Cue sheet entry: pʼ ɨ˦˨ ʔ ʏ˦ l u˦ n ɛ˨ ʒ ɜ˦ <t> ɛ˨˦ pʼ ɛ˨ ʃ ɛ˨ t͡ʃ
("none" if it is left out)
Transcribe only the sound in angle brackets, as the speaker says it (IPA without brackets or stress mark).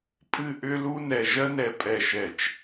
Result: n